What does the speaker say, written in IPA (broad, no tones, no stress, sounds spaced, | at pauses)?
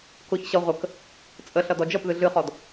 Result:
k ʊ ç ɕ ʌ ʁʷ ə k | t͡sʼ ə ɬ ʌ d ɔ d͡ʒ ʌ p ð ɨ ɮ ɨ χ ɔ d